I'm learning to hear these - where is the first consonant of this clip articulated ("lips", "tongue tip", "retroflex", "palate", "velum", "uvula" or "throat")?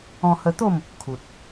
throat